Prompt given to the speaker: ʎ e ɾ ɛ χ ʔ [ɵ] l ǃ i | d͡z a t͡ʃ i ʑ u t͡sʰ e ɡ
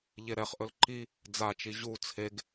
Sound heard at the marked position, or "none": ɵ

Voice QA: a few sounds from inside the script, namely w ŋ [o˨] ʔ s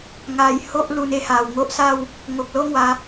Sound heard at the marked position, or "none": o˦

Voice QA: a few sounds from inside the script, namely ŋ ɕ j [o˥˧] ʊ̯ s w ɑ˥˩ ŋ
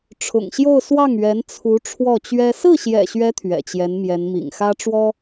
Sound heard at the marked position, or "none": o˥˧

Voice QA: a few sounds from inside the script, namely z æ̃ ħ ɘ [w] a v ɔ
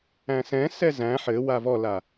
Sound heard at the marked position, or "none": w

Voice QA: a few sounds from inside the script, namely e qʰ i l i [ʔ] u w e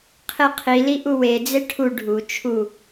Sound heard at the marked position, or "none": ʔ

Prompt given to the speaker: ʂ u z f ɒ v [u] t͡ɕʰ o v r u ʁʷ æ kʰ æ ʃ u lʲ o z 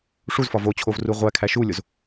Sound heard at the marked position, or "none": o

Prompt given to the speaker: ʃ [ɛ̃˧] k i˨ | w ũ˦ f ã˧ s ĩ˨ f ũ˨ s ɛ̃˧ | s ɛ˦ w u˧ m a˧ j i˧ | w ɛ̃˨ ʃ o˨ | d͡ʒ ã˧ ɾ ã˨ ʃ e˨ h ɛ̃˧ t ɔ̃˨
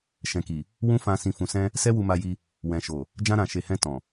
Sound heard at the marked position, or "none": ɛ̃˨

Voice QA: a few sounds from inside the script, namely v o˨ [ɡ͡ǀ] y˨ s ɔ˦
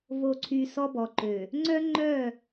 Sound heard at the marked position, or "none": ǀʰ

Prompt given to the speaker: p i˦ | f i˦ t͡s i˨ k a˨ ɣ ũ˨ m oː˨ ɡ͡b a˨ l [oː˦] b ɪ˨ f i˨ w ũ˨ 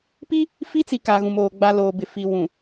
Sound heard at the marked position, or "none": oː˨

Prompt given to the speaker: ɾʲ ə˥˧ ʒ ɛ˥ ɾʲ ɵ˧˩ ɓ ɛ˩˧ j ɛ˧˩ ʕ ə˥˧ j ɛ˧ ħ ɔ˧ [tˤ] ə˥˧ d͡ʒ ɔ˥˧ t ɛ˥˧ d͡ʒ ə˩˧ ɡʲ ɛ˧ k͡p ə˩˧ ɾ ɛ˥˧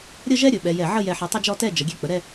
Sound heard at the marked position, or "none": tˤ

